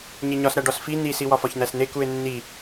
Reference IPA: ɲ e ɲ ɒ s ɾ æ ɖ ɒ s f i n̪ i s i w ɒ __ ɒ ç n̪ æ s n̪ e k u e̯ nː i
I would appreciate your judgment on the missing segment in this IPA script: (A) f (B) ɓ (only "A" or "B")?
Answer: A